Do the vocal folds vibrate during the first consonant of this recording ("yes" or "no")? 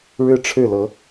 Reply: yes